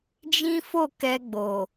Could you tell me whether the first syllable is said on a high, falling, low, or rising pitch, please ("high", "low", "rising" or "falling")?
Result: high